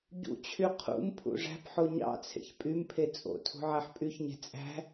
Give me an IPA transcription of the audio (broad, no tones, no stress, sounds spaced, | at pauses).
ɟ ṵ t͡ɕʰ y qʰ ṵ m pʰ ṵ ʐ æ̤ p ħ o ɲ ɑ̰ t͡sʰ ḛ ç pʼ y m pʰ e t͡sʼ o̰ tʰ ṳ ʕ æ ħ pʼ y ç ɲ e̤ t͡sʼ æ̤